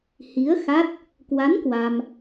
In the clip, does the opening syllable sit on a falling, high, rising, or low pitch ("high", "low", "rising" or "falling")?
rising